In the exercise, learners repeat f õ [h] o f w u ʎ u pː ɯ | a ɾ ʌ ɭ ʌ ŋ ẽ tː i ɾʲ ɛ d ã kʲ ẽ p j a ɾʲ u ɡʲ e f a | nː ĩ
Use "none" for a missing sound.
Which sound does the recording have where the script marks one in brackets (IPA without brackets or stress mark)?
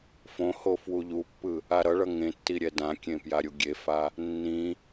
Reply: h